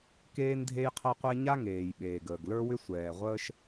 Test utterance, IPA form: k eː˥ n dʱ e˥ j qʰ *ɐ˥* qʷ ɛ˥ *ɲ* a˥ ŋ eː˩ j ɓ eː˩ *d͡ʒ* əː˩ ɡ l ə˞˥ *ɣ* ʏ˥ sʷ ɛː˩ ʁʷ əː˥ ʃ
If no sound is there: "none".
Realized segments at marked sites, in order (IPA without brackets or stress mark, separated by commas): ɐ˥, ɲ, ɡ, w